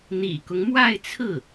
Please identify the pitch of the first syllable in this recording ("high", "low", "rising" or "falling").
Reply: low